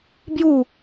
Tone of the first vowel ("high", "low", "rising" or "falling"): falling